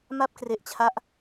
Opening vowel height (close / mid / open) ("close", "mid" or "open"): open